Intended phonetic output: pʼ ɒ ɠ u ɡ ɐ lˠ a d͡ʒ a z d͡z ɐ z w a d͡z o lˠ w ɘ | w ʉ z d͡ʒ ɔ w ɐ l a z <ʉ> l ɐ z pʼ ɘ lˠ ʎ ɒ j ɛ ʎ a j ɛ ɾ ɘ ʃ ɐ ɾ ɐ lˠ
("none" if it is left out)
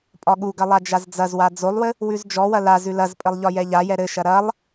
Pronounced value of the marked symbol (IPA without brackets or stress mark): ʉ